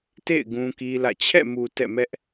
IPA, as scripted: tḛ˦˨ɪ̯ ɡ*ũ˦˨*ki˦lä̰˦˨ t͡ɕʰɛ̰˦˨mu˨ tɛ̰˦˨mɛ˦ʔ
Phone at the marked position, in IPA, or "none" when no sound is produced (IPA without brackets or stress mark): ũ˦